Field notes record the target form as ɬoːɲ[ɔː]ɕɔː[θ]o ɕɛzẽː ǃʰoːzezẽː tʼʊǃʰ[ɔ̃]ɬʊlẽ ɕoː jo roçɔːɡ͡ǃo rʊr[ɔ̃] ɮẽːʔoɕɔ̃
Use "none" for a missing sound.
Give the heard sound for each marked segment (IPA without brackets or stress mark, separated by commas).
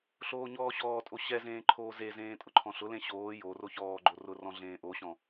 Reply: ɔː, tʼ, ɔ̃, ɔ̃